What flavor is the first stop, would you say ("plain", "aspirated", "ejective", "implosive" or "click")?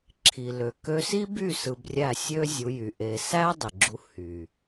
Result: click